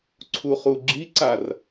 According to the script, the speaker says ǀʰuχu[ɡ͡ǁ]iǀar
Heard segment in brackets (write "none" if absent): ɡ͡ǁ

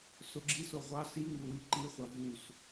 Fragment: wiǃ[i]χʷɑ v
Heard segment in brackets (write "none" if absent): i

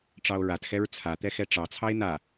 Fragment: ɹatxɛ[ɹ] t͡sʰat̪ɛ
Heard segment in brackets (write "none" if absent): ɹ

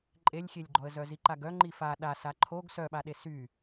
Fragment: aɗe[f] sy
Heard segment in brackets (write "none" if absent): none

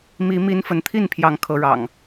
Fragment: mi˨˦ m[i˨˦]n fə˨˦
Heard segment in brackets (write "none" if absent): i˨˦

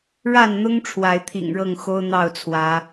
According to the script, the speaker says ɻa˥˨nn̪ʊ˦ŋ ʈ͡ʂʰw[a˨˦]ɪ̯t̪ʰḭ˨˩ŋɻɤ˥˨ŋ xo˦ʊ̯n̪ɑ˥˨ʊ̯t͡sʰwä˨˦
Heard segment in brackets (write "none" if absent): a˨˦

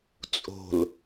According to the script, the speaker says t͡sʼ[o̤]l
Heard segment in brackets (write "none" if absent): o̤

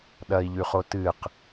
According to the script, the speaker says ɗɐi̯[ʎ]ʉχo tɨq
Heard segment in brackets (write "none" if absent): ʎ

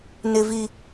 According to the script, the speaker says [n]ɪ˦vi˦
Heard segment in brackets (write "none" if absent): n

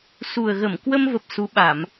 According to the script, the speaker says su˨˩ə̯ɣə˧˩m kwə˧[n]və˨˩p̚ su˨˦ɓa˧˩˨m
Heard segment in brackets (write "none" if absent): m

